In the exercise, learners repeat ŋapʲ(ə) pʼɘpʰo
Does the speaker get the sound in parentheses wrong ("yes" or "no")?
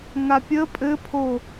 no